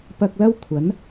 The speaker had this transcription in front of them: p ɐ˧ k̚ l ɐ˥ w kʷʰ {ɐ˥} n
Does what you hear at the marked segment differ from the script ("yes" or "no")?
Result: yes